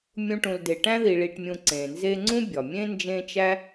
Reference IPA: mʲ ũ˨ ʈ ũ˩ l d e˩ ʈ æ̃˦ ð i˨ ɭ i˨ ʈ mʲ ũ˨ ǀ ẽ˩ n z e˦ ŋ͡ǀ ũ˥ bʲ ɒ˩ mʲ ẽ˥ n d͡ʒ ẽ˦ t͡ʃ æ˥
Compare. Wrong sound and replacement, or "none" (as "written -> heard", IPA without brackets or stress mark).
none